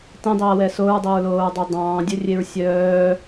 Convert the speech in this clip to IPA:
tẽdˤøɐ̯wɛ soɹdˤɵɹloːɹdˤɵ dˤɑ̃ːdʲɵrʲeɹ sʲœː

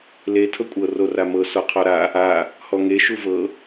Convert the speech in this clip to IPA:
le tʰɤkʷʼɤ roramɤ sɔqʰɔɾa | a | hɔŋe ʃuvɤ

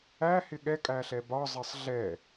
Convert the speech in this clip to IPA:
æhɪ ɠɛkʼæɬɛ bɒzˤɪsˤ ɮɛ

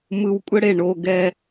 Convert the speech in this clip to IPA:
mɯ˧wkʷʼə˦ɽe˦˨ ɳo˧ɡɛ˧

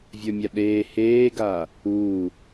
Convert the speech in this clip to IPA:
vʲə˞mʲaɗeː heːɡaː | uː

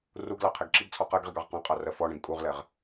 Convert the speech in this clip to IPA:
ruɡlɑ qʰɛɡǁiɡt͡sʰɔ qɜɡʁiɡ ɑʁqɑ̃qʼɑ rɜfɔɳɛ̃ɡ kʼuʁlɛʁ

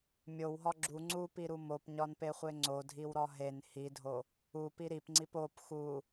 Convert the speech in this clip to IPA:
mʲowɦɒ ɡ͡ǁu ŋ͡ǀupiɾu mopɲɒnpeχʷe ŋ͡ǀodʱiwɾɒ ɦen hidʱo | upi ɾipŋ͡ǀip op xu

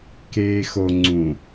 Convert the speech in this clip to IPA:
keːxo ŋ͡ǀũ

